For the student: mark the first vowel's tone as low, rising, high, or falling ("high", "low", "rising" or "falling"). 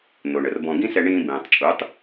low